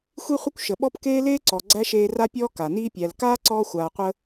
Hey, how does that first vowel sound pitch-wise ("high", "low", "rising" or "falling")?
high